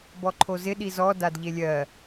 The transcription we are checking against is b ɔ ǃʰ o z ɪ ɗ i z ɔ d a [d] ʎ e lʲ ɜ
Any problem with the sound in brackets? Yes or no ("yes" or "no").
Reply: no